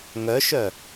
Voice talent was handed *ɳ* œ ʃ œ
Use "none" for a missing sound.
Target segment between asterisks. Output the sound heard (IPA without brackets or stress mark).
ŋ